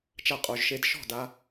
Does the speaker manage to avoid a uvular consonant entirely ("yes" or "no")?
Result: no